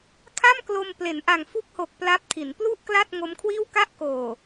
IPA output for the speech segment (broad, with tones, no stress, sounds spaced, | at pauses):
kʰ a˥˩ m k l o˧ m p l e˩˦ n ʔ a˨˩ ŋ f u˥˩ k̚ h o˨˩ k̚ p l a˦˥ p̚ tʰ i˩˦ n p l u˥˩ ʔ k l a˥˩ t̚ ŋ o˦˥ m kʰ w iː˥˩ w k a˥˩ ʔ k oː˨˩